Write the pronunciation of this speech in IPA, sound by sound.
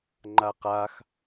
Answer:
ŋ͡ǃ a q a x

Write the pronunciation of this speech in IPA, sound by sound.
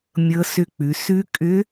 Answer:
mʲ ɤ˧˥ s ʏ˧˥ k͡p ʉ˩˧ s ʉ˧˥ kʼ ʏ˧˥

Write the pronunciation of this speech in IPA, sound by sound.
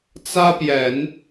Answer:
t͡s ä˥ p j ɛ˨˩˦ n

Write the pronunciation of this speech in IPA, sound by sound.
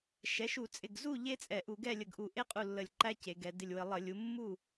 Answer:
ʃ ɛ˩˥ ʃ u˧˩˧ t͡sʼ ɪ˧˩ ɡ z u˥˨ ʎ e˦˥ t͡sʼ ɛ˧˩˧ ʔ u˧˩˧ ɡ ɛ˥˨ lʲ ə˧˩ ɡ ʔ u˧˩ ʔ e˦˥ qʼ u˧˩ lː ə˧˩ lʲ ǃ æ˦˥ c e˩˧ ɡ ɛ˩˧ d ɪ˧˩ lʲ w ə˧˩˧ lˠ ə˧˩˧ lʲ u˩˥ mː u˥˨

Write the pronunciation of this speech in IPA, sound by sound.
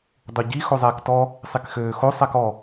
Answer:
dˤ u ɟ i x o zˤ ɛː k t ɔ | sˤ i k x øː x o sˤ ɛ k ɔ

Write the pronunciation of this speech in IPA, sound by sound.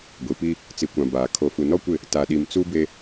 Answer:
ɡʷ i˨ p i˦ | t͡s i˨ kʷ ã˨ b aː˨ kʰ o˨ f u˨ n ɔ˦ kʷ ɪ˦˨ | t a˨ ɗ i˨ m t͡s u˦ b e˦

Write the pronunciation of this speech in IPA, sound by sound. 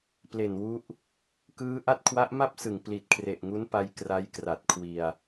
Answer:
p l e˨˩ n w u˦˥ ʔ | k ɯː˦˥ ʔ a˦˥ t̚ kʰ w a˦˥ ʔ m a˥˩ p̚ s ɯ˨˩ ŋ p l i˨˩ t̚ kʰ r e˨˩ ʔ ŋ u˦˥ n p a˧ j k r a˦˥ j k r a˨˩ t̚ kʰ w i˧ a̯

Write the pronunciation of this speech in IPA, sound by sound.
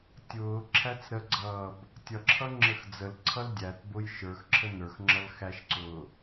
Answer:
tʲ ʊː ǁʰ æ t͡s ɾ ə ɡ͡ǀ ʌː b | tʲ ʌ ǁʰ ʌ ŋ͡ǁ ə x d͡z ə l ǀʰ ʌ l dʲ æ t b ʊ j ʃ ə˞ x ǁʰ ə n ə˞ x ŋ͡ǁ ʌ l x æ ʃ ǀ ʊː

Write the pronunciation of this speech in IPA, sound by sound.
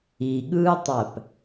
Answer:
i ɠ ɯː tˤ æ p

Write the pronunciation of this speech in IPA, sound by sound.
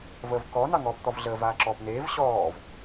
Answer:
v əː v k ɔ n ɑ ŋ ɔː p t̪ ɔ v ɮ əː v aː ǁ ɔː p n eː v ɕ ɔː v

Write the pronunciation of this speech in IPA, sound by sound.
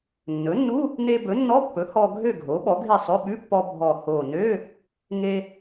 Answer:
nː ɵ˩˥ nː u˧˥˧ | n e˧ b ɵ˩˥ nː ɔ˧˥˧ pː ɵ˩˥ h ɔ˧ ɡʱ ø˥˨ ɡʱ o˩˥ ɓ ɔ˩˥ ɡʱ e˥˨ sˤ ɵ˧˥˧ ɓ ʉ˧˥˧ pː ɔ˧ bʱ ɔ˨˩ h o˨˩ n ø˧˥˧ | ŋ e˧

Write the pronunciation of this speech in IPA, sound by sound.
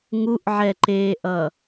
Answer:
ŋ u ʔ ʕ ɛ ǃ eː ʔ ʌ

